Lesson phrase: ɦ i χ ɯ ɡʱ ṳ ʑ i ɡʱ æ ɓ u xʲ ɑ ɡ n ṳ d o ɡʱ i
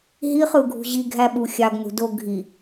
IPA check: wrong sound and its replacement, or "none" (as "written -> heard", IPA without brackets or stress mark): none